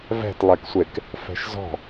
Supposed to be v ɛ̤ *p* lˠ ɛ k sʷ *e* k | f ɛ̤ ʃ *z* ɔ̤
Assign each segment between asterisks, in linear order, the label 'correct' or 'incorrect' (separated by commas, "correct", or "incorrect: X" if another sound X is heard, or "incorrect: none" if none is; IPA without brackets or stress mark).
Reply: incorrect: t, correct, correct